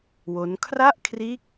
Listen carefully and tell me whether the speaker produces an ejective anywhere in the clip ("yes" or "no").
no